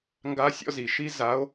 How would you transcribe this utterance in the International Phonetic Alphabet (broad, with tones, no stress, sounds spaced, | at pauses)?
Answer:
ŋ ɡ a˧˥ sʲ ɔ̰˥˧ z i˨˩˦ ʃ i˧˥ z a˧˥ o̯